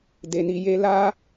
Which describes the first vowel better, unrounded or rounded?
unrounded